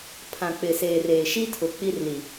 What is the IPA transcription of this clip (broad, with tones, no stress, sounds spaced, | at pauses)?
pʰ ã˨ k͡p ɪ˨ s eː˨ r eː˨ ʃ i˦ tʰ ʊ˨ k͡p i˦ r l i˨